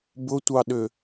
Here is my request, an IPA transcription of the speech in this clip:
b ʊ tʷ ɑ ɗ ʏ

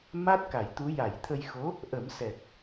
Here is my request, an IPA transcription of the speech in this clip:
m a˦˥ t̚ k a˨˩˨ j t̪ u˧˥ j a˨˩˨ j t̪ʰ ə˧ j x o˧˥ | ʔ ə˨˩˦ m s ɛ˨˩ k̚

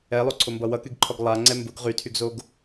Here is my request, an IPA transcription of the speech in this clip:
ɛ lˠ o ǀʰ o m b ʌ w ʌ k y ɡ ǃʰ ɔ ɡ lˠ a ŋ͡ǀ ɛ m b ʊ ɡ ʁ y tʰ y ɡ z o ɡ

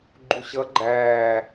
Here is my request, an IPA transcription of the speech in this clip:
ɡ͡ǃ u ɕ ʌ ɡ͡ǃ æː

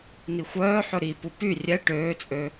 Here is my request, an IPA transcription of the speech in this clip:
n i xʷ œː ħ ɵ ɾ i p u p y rʲ ɛ ʈ øː t͡sʼ ø

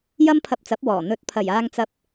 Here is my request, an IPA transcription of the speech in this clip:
j ɐ˥ m pʰ ɐ˧ p̚ t͡s ɐ˨˥ p̚ w ɔː˨˩ n̪ ɵ˨˥ t̚ pʰ ɐ˨˩ j aː˧ ŋ t͡s ɐ˧ p̚

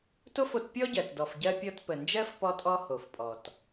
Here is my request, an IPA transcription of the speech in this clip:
t o˥ f o˧ t pʲ ɔ˥ ɟ ɜ˩ t d ɔ˩ f ɟ ɜ˧ pʲ ɔ˧ t p ə˩ n d͡ʒ ɜ˥ f p ɔ˧ tʼ ɔ˧ h o˩ f pʼ ɔ˩ t

